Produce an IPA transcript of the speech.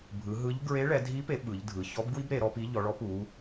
bʱ ɯ˩˧ ɦ ɯ˧˥ ʎ ɡ ɹ e˧˥ ɭ ɛ˩˧ dʱ i˧˥ p e˩˧ ɓ ɯ˩˧ ʎ dʱ ɯ˩˧ ç ɔ˧˥ b ɡ w i˥ b ɾ e˩˧ ɾ ɔ˥ p i˧˥ ʎ ɔ˩˧ ɭ ɔ˧˥ p u˩˧

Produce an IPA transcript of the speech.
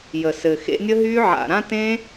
j ə˨ s ɘ˨ x ḛ˧ nʲ ə˦ ɦ y˦ ʕ a̰˨ ɾ ã˧ t ẽ˧

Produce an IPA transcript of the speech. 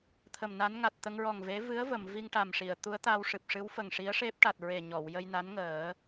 t̪ʰ ə˨˩ m n a˧˥ n ŋ a˨˩ t̚ t̪ ə˧ ŋ ɹ ɔ˨˩ ŋ v e˧˥ v ɨ˧˥ ə̯ v ə˨˩˨ m v i˧ ŋ ʈ a˨˩ m ʂ i˨˩˨ ə̯ t̪ u˧˥ ə̯ t̪ a˧ w ʂ ɨ˨˩ p̚ ʂ ɨ˧˥ w f ə˨˩ ŋ ʂ i˧˥ ə̯ ʂ e˦˥ p̚ ʈ a˨˩ t̚ ɹ e˨˩ ɲ ɔ˨˩˨ w j ə˧ j n a˧˥ n ŋ əː˨˩˦

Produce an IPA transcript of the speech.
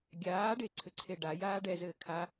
ɡʲ aː ɖ e ǀʰ ʏ ǀʰ e ɖ a j aː ɖ ɛ z ɘː kʰ a

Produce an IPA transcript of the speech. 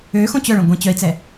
ø x õ t͡ɕ œ ɭ œ̃ ɡʷ ɛ̃ t͡ɕ œ i̯ t͡s ɛ

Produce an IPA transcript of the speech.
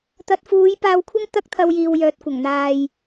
t̪ ɐ˨ t̚ f uː˨˧ j p aː˧ w kʷʰ ɐ˥ ŋ t̪ ɐ˥ k̚ t̪ʰ ɐ˧ w j iː˨ w j œː˨ t̚ kʷ ɐ˨˩ ŋ n̪ aː˨ j

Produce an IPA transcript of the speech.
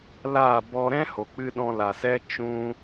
l aː˦˨ b ɔ˧ ɾ ɛ̃˦ h o˨ k͡p ɨ˧ ɗ ɔ̃˧ l a˨ s ɛ˦ t͡ʃ ũ˦

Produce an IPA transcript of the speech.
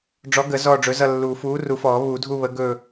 ɖ͡ʐ ɔ˨˥ ɡ ə˨˩˦ z ɔː˦˨ ɖ͡ʐ ɵ˨˥ z ʌ˦˨ lː u˨˩˦ f uː˨˥ r u˨˩˦ f ɔː˨˩˦ β u˨˩˦ dʱ u˦˨ β ə˨˥ ɡ ɵː˦˨

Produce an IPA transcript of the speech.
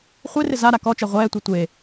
χʷ e r ɪ z a ɾ a k ɔ t͡ʃ ɛ ʁʷ ɛː tʷ e tʷ e

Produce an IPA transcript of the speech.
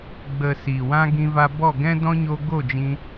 ɡ͡b ə˨ s iː˨ w ã˦ ɡ ĩ˧ v a˧ b ɔ˦˨ ɡ ɛ̃˦ d ɔ̃˦ ɲ o˧ ɡ o˦˨ d͡ʒ ĩ˧

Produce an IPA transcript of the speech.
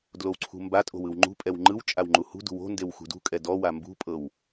d l o w ǀʰ ṳ m b a tʼ o̤ w ɯ w ŋ͡ǃ ṳ pʼ ɛ w ŋ͡ǃ ɯ w t͡ʃʼ a w ŋ͡ǃ u h ṳ d ṳ w o̤ n d e w x ṳ d ṳ kʼ ɛ d ɔ w a m b ṳ pʼ ɤ w

